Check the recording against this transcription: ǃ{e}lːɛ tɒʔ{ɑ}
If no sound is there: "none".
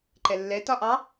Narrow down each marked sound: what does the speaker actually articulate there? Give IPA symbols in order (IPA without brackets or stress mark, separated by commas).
ɛ, ɑ